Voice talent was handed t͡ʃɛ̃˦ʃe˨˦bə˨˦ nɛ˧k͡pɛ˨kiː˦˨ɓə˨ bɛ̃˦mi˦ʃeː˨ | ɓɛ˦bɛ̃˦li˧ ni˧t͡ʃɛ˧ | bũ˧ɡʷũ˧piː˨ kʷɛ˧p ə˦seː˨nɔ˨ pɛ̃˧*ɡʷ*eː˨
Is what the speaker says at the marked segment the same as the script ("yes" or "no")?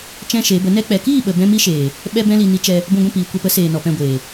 yes